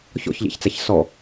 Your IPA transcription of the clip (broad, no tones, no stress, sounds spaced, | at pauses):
ç ɔ̰ ç ʎ ɛ̰ ç t͡s æ ç s ɔ